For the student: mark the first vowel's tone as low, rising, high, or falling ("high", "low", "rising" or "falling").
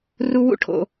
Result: high